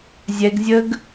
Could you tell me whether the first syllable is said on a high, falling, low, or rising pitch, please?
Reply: high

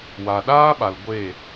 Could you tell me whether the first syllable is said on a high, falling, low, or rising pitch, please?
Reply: low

